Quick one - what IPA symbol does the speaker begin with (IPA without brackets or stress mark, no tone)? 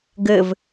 ɡ